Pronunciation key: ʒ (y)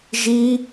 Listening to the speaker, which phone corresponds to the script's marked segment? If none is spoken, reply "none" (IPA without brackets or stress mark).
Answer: i